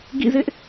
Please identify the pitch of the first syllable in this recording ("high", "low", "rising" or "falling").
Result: falling